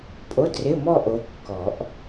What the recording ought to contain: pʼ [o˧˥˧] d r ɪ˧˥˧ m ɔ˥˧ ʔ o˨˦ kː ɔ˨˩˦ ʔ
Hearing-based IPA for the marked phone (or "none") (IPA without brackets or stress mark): o˧˥˧